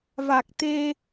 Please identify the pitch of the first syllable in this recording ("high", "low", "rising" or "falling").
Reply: low